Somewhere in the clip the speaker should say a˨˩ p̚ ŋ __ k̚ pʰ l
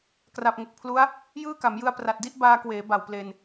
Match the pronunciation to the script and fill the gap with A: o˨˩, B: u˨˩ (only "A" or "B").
A